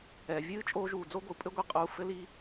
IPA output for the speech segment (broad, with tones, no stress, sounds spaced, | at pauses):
ɛ˨ vʲ ɨː˦ t͡ʃʼ oː˧ ʒ uː˨ d͡z o˦ ɡʷ ɨ˨ pʼ ɘ˦ ɡʷ i˧ qʼ uː˧ f ɘ˦ l i˦